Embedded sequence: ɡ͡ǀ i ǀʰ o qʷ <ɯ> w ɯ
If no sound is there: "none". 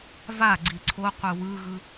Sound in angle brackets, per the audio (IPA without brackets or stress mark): ɯ